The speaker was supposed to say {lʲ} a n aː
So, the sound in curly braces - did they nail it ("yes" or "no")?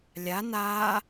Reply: yes